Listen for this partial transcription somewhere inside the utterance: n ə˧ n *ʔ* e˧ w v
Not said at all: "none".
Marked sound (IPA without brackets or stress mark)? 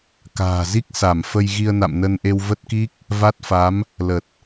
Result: ʔ